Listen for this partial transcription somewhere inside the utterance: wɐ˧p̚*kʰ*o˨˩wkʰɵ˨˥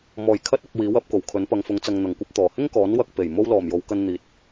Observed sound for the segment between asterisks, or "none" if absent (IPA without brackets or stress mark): k